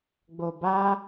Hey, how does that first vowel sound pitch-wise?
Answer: low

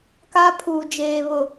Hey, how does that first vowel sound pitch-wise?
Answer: high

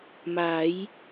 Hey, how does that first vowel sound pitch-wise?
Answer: rising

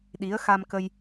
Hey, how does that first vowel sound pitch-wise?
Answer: rising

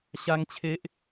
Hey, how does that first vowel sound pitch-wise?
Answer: high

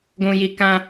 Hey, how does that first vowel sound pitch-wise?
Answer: low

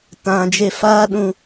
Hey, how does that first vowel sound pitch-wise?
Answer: high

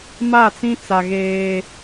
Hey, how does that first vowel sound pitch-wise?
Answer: falling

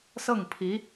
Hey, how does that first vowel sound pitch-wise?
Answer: falling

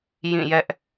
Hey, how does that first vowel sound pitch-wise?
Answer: falling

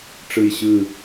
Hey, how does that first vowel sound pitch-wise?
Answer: falling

